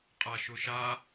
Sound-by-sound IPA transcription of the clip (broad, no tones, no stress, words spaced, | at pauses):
qʼaʃʊʃa